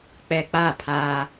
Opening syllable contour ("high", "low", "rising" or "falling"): low